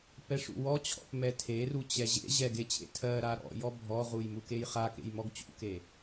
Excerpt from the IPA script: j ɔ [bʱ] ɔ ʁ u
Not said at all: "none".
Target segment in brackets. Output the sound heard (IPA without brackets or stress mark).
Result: bʱ